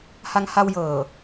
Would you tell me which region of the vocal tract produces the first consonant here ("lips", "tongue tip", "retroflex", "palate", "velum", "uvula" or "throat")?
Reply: throat